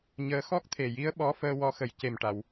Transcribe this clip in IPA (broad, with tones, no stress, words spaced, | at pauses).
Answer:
ɲəː˧˥ xɔ˦˥k̚t̪ʰe˨˩ji˧˥ə̯ ɓɔ˧˥fəː˧ wɔ˧˥xə˨˩j ce˨˩mʈa˨˩˨w